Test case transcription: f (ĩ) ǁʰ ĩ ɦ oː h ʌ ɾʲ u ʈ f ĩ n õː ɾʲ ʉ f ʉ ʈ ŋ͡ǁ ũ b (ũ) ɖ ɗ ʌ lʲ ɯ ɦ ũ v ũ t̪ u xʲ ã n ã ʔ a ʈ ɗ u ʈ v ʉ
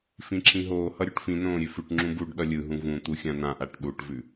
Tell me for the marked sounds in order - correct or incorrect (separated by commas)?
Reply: correct, incorrect